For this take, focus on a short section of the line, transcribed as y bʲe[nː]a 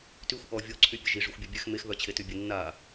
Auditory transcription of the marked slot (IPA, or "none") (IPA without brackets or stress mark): nː